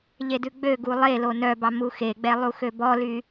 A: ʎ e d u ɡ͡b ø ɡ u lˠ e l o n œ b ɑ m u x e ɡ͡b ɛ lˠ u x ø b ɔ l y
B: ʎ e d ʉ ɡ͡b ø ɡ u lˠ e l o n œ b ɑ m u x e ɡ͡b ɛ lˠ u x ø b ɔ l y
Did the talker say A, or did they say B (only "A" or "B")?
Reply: B